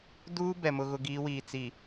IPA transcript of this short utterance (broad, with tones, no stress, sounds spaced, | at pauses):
d uː˦ b ɛ˨ m ʊ˦ ɣ ʊ˦ ɡ iː˨˦ w iː˨ t͡s i˨